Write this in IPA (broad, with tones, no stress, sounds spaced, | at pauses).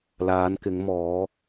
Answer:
l aː˨˧ n k ɪ˨˧ ŋ m ɔː˨˧